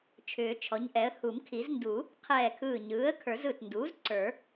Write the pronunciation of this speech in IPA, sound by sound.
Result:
t͡ʃʰ ʏː˨˩˦ t͡ʃʰ ɔ˩˥ ɲ ʔ ɛ˩˥ ə̯ h u˨˩˦ m kʰ i˨˩˦ z n d u˨˩˦ | qʰ ɛː˧˩ kʰ ɯː˧˩ ɲ ɯː˩˥ ə̯ kʰ ə˞˨˩˦ z ɯ˧˩ t n d uː˩˥ z ǀ ə˞˨˩˦

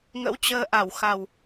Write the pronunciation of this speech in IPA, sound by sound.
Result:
ŋ ə̰˧˥ w t͡ɕ əː˧ ʔ a˧˩ w x a˨˩ w

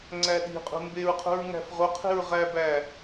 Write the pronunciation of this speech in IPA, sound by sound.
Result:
ŋ͡ǀ æ ɗ i̤ qʼ ṳ m b e ɹ qʰ ṳ ɹ ŋ æ̤ f ʁ o qʰ i̤ ɹ ʁ æ b æ

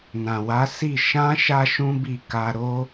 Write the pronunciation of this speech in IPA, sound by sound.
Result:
n ã˨ w a˨˦ s i˦˨ ʃ ã˧ ʃ a˦ ʃ ũ˦ b i˦˨ k a˧ ɾ o˦

